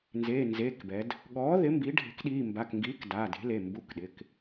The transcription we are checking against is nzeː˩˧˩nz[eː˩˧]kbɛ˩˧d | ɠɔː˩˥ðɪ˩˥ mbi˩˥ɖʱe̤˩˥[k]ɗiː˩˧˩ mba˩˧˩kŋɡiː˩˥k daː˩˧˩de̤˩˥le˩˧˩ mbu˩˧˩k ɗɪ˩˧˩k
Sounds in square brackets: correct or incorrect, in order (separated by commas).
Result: incorrect, correct